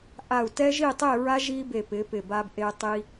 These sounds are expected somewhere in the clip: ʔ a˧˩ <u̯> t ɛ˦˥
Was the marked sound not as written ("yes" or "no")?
no